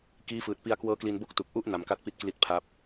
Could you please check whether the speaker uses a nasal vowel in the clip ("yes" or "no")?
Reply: no